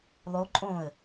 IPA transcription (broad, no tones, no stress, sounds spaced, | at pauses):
lˠ o ǃʼ õ ə̯